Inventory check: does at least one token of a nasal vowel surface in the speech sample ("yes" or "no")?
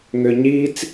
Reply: no